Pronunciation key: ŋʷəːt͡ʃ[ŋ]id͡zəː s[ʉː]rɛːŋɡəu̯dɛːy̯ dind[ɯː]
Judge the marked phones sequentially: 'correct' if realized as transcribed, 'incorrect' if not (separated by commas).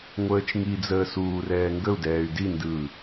correct, incorrect, correct